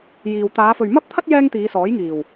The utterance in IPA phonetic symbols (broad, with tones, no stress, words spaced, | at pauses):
jiː˨w t̪aː˨˧fɵ˨ɥmɐ˥p̚t̪ʰɐ˥t̚ jɛː˥ŋt̪iː˨˧sɔː˨˥jŋiː˨˩w